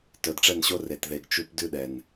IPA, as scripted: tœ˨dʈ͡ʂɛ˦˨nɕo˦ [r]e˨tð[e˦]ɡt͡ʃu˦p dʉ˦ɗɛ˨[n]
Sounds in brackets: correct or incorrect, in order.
correct, incorrect: e˨, correct

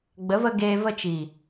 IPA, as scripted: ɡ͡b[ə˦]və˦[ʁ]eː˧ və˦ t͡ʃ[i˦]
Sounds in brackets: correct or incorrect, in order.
incorrect: ə˨˦, incorrect: ɡ, incorrect: i˨

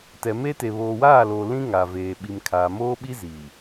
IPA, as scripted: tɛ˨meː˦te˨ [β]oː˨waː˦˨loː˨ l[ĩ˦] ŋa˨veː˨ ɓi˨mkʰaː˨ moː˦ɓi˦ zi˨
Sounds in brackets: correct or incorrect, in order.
correct, correct

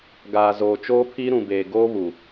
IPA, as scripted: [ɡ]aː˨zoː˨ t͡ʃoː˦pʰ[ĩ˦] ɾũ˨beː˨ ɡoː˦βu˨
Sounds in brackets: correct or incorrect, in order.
correct, incorrect: i˦

